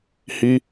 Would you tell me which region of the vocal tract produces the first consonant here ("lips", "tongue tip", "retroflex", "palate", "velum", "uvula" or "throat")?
throat